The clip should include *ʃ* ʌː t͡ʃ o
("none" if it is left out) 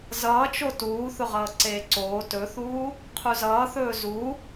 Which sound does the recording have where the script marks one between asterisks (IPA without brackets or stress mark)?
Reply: z